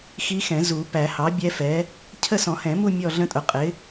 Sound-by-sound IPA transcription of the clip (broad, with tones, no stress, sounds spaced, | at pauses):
x i˦˥ x ɛ̃˨˩˦ z u˨˩˦ p æ˨˩˦ h ɑ˩˥ bʲ ɛ˦˥ f ɛ˩˥ | cʰ ə˥˧ s ɔ̃˨˩˦ h ɛ̃˨˩˦ m u˥˧ mʲ ɔ˥˧ ɮ ə̃˦˥ tʼ ʊ˩˥ qʼ ɪ˩˥